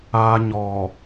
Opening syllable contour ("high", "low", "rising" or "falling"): high